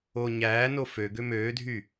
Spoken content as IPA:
o ɲ æː n o f ø ɡ ø m øː dʱ y

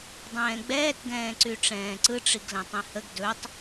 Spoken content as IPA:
dˤ ɛ̃ː ɡ͡b ɛː t ɡ ɛ̃ː ǀ y ʈ͡ʂ ɛ̃ː ǀ ɯ ʈ͡ʂ i ɡ l ɛ̃ tˤ ĩ h ə ɡ d ɵ tˤ

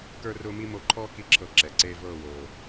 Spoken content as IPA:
k ə˞˦ r ʊː˦ m i˦ m o˧ ǃʰ ɔː˦ k i˦ ǁʰ ɤ˧ ǁ ɛ˨ ǀ eː˦ v ɤː˦˨ w oː˨

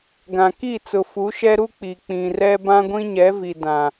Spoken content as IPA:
ɡ ã˨ k i˦˨ t͡s ʊ˨ f u˨˦ ʃ ɛ˦ ɾ u˦ k͡p i˨ k͡p ĩ˨ r ɛ˦ b ã˦ ɡʷ ĩ˦ ɲ ɛ˨˦ v i˨ d ã˨

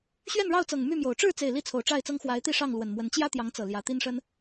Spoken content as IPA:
ɕ ɥ ɛ˥˨ n ɻ ɑ˥˨ ʊ̯ t͡s ɤ˨˩ ŋ m y˥˨ m j o˨˩ ʊ̯ ʈ͡ʂ ɻ̩˥˨ t͡s e˨˩ ɪ̯ l i˥˨ t͡sʰ o˨˩ ʊ̯ ʈ͡ʂ a˥˨ ɪ̯ t͡s ɤ˦ ŋ x w a˨˦ ɪ̯ t̪ i˥˨ ʂ ɑ˥˨ ŋ l w ə˨˩ n m w ə˨˦ n t͡ɕ j ä˦ t̪ j ɑ˨˦ ŋ t͡s ɤ˨˩ l j ä˨˦ t̪ i˦ n ʂ ə˦ n

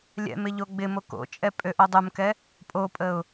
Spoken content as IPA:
lʲ ɛ̰ m ɪ ʎ o ɡ͡b ɪ m o k o̰ t͡ʃʼ ɛ pʼ ø ʔ o dˤ u m k ɛ | pʼ o pʼ ə ʊ̯

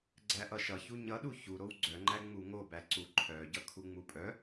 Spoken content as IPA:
ɡ͡ǀ æ ʔ ʌ ʃ ʌ ç u ɲ ʌ ɗ u ç u ɾ o w ɡ͡ǀ œ ŋ͡ǃ æ ŋ͡m u ŋ o b æ ǀ u ǃʰ œ ɟ ʌ kʰ u ŋ͡m u pʼ œ

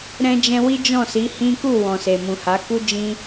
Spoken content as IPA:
ɾ ɛ̃˧ d͡ʒ ɛ̃˧ w i˦ d͡ʒ ɔ̃˦˨ s i˨˦ h ĩ˦ k u˦˨ w ɔ̃˨ s e˨ m ũ˨ h a˨˦ k u˦ d͡ʒ ĩ˦

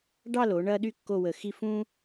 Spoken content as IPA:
ɖ ɑ˥˧ l o˩˧ ɳ ɐː˥ ɗ y˥ kː o˥˧ w ə˧˩ x i˥˧ f ũː˥

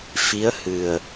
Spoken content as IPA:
f i˧˥ ə̯ h ɨ˨˩ ə̯

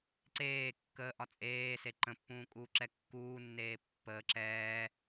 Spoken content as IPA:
ǀ eː kː əː ʔ ɒ t͡sʼ eː s e ǃ ə̃ pː ũː kʼ uː ǁ ɛ kː uː nː eː pː əː ǁ ɛː

